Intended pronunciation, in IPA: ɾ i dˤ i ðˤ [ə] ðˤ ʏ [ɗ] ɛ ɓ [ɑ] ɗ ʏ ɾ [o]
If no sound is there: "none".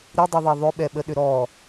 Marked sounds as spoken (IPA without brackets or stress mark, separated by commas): ɑ, ɓ, ə, ɔ